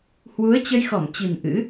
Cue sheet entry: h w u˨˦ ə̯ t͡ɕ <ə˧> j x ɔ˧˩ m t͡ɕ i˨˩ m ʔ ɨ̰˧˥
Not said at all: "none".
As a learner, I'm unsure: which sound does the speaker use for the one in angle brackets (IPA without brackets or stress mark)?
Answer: ə˧